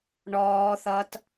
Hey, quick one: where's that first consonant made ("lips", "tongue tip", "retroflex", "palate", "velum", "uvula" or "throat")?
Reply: retroflex